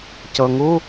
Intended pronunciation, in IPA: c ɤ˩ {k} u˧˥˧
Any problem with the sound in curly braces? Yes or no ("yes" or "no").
yes